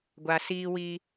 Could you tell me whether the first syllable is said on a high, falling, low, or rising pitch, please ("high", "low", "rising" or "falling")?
low